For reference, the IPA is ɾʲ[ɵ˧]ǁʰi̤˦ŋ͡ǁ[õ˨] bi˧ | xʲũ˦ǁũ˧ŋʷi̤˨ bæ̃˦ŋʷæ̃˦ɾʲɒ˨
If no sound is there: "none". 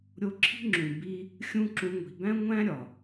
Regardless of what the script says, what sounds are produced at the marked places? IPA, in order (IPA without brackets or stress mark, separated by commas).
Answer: o˧, ũ˨